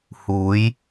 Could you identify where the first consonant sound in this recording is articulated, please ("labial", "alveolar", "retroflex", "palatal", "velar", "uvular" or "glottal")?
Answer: glottal